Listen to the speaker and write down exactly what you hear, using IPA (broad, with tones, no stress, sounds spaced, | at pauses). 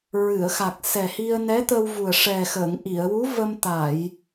ɹ ɨ˨˩˨ ə̯ x a˨˩ k̚ s ɛ˨˩ h i˧ ə̯ n ɛ˧˥ t̪ ə˧ w v u˨˩ ə̯ ʂ ɛ˨˩ x ə˨˩˨ ŋ ʔ i˨˩˨ ə̯ w u˧˥ v ə˧ m t̪ a˨˩˨ j